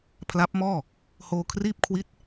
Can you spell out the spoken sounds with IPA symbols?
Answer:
pʰ l a˦˥ p̚ m ɔː˥˩ | h oː˧ kʰ r iː˥˩ p̚ kʰ w i˦˥ t̚

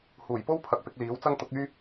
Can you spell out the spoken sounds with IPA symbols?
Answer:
h uː˨˩ j p o˥ w pʰ ɐ˨ k̚ p ɪ˧ k̚ l iː˨˥ w t͡s ɐ˥ ŋ t̪ ʊ˨˥ k̚ yː˥

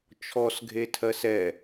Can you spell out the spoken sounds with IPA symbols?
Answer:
t͡ʃʰ ɔ s ɡʱ e tʰ ɜ s ɛ

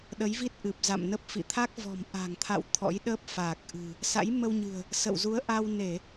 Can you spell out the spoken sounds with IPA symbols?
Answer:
ɗ ə˨˦ j v i˦˥ t̚ ʔ ɨ˨˩ p̚ z a̰˧˨ m n ə˦˥ p̚ f ḭ˧˨ t̪ʰ a˦˥ k̚ v ɔ̤˨˩ m ʔ a̤˨˩ ŋ t̪ʰ a̰˧˨ w t̪ʰ ɔ̰˧˥ j ɗ ə˦˥ p̚ f aː˨˩ k̚ ʔ ɨ̤˨˩ | s a̰˧˥ j m ə˧ w ɲ ɨ̤˨˩ ə̯ | s ə̰˧˨ w z u˨˦ ə̯ ʔ a˧ w n e˧˩˨

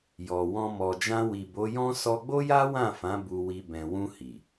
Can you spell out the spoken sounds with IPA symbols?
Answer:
j ɔ˨ w ɔ̃˧ m ɔ˨ d͡ʒ ã˧ w i˨ b o˨˦ j ɔ̃˦ s ɔ˧ ɡ͡b o˦ j a˦ w ã˦˨ f ã˨˦ b u˧ w i˧ b ɛ̃˨ w ũ˧ h i˨

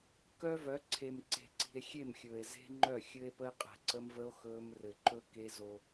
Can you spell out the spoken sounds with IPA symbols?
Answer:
k œ˦ v œ˨˦ ǀʰ e˨ m ǀ e̤˨ ǀ i̤˨ e̯ xʲ e˦˨ m xʲ ɵː˨ e̯ z e̤˦ ŋ͡ǃ œ˦˨ xʲ ɘ˦ e̯ p ə˦ e̯ qʼ ɛ̤˨ ǀ ə˦ m v ə˦ o̯ x ɵː˦ m r ɘ˨ ǃ ɵ˦ k e˦ z o˦

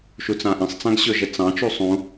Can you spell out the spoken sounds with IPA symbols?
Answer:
ʃ u t͡s ã ʔ ĩ sˤ t͡s ã ɡ ɕ ɵ ʒ ɛ t͡s ɑ̃ t͡ʃ u sˤ ũ

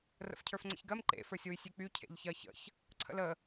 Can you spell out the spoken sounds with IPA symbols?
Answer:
r ə̰ f cʰ ə˞ f ŋ͡ǀ ə̰ ç ɡ ɜ m ǃ ḛ f ə˞ sʲ w y sʲ y k͡p y cʰ ḛ ʎ ç ɜ ç ə̰ ç | ǀʰ ə̰ l ə

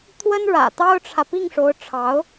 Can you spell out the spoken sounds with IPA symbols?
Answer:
t̪ʰ w ə˥ n ɻ ä̰˨˩ t̪ ɑ˥ ʊ̯ ʈ͡ʂʰ ä˨ p i˥˩ ŋ ʂ o˧˥ ʊ̯ ʈ͡ʂʰ ɑ˧˥ ʊ̯

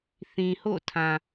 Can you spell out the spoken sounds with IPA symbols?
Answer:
θ ĩ˨ h o̰˦˨ tʰ ã˨

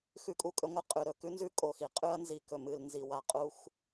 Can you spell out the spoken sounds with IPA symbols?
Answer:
x ʉ˦ kʼ u˦ kʼ ɵ˦ ŋʷ ɨ˦ qʼ ʉ˨ ɾ ɵ˨ k ʉ˦ n z ʉ˦ kʼ o˨ x i˨ qʼ ʉ˦ ɐ̯ n z i˨ k ɵ˨ m ɨ˨ l n z i˨ w a˦˨ qʼ u˦ xʷ

